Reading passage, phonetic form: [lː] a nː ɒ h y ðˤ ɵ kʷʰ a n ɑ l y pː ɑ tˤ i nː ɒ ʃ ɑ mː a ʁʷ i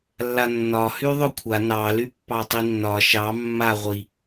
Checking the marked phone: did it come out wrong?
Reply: no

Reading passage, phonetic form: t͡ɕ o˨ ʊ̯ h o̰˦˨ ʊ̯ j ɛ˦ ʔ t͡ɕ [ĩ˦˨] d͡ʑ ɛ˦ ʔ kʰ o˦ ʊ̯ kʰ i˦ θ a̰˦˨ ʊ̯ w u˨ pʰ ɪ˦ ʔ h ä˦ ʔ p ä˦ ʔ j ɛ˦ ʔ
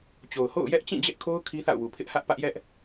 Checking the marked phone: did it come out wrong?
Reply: no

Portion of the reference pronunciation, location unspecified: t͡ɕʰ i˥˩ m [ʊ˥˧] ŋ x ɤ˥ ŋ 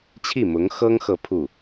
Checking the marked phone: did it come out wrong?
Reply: yes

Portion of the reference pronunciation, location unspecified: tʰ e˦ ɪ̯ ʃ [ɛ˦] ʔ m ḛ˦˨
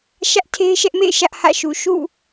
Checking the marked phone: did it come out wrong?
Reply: no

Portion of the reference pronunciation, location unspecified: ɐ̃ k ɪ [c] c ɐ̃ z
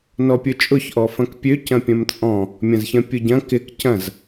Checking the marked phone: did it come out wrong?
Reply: yes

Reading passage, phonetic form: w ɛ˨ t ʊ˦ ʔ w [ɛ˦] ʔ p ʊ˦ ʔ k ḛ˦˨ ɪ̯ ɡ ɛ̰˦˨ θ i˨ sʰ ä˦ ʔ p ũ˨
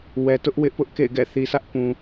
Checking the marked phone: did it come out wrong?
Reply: yes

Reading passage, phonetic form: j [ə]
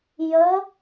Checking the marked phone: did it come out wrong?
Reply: no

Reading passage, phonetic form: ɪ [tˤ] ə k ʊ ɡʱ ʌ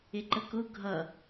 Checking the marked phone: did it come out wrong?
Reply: yes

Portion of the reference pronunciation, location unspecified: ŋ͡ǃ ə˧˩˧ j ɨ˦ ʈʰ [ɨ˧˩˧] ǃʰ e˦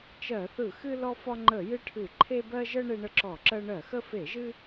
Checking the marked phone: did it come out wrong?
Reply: no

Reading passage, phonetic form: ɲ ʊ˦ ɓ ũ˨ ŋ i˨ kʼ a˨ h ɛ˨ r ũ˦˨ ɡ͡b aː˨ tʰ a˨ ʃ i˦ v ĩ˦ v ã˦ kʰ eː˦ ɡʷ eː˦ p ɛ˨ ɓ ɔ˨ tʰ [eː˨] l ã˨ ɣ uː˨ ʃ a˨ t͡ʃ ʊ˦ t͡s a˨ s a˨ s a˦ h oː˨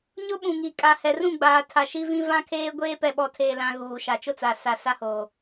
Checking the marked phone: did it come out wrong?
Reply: no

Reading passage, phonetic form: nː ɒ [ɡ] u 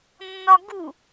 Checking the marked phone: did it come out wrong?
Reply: no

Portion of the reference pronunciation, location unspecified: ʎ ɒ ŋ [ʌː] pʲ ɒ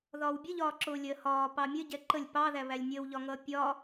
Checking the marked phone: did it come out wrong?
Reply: no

